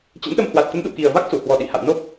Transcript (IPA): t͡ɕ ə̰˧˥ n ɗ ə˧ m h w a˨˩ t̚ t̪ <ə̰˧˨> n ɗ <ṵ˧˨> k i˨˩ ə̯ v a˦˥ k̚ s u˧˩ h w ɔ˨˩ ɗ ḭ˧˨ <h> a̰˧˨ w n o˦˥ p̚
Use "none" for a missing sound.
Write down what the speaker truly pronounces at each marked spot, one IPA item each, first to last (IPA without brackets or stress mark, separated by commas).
ə˨˦, ṵ˧˨, h